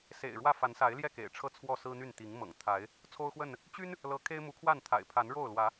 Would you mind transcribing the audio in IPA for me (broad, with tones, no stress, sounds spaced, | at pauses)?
s ḛ˨˩ ɪ̯ ɻ w ä˥˨ f a˨˦ n s a˨˦ ɪ̯ l j ɛ˥˨ k ḛ˨˩ ɪ̯ ʈ͡ʂʰ ɤ˥˨ t͡sʰ w ɔ˥˨ s ɹ̩˦ n̪ y˥˨ n t̪ i˨˦ ŋ m ɤ̰˨˩ ŋ t̪ʰ a˨˦ ɪ̯ | t͡sʰ o˦ ʊ̯ x w ə˥˨ n | t͡ɕ y˦ n | l ɤ˦ kʰ e˦ ɪ̯ m u˨˦ kʰ w a˥˨ n t̪ʰ a̰˨˩ ɪ̯ pʰ a˨˦ n ɻ o˥˨ ʊ̯ l w ä˨˦